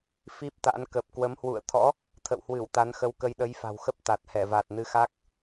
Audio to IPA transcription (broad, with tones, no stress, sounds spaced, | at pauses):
f i˦˥ p̚ t̪ a̰˧˥ n k ə˨˩ p̚ k w ə˨˦ m h w ṵ˧˨ ə̯ t̪ʰ ɔ̰˧˥ | t̪ʰ ə̰˧˨ w h w ɨ˧˩ w t̪ a˨˦ n x ə˨˦ w k ə˧ j ɗ ə˨˦ j f a̤˨˩ w x ə˦˥ p̚ t̪ a˨˩ t̚ h ɛ˧˩ v a˨˩ t̚ n ɨ˨˦ x a˦˥ k̚